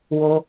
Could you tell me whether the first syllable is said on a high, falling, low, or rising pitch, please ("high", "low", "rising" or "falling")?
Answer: high